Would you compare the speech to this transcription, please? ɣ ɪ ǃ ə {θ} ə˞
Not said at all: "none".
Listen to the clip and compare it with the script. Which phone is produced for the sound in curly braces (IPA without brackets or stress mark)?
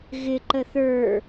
θ